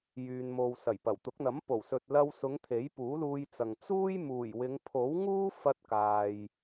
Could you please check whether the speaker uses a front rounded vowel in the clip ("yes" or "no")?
yes